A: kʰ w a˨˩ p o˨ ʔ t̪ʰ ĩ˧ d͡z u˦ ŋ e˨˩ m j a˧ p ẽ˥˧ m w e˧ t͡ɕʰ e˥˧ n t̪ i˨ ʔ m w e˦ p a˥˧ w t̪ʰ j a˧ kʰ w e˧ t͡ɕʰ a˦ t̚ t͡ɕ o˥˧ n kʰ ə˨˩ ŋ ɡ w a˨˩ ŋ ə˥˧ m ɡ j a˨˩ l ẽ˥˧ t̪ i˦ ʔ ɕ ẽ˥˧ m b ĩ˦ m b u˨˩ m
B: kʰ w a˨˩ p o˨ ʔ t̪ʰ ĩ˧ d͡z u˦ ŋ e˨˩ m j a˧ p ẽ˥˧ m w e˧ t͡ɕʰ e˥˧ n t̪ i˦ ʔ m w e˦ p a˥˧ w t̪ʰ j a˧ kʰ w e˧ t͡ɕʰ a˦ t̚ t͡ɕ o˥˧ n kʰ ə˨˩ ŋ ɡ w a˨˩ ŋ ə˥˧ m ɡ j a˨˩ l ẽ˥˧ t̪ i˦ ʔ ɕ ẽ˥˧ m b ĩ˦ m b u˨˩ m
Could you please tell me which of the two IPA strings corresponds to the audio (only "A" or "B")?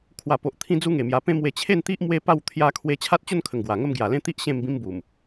B